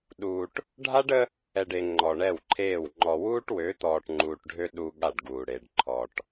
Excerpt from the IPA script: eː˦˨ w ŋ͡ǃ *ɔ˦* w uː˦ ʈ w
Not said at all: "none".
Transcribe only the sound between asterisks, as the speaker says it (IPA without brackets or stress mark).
ɔ˨